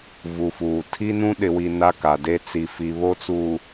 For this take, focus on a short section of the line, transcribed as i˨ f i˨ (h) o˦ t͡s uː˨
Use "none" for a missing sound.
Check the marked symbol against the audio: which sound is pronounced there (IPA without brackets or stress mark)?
β